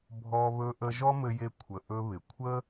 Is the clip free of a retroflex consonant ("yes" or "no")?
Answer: yes